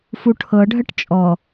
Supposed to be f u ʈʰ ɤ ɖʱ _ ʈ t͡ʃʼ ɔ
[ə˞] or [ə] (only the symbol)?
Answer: ə